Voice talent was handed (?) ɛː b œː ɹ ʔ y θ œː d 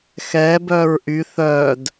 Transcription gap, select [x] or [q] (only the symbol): x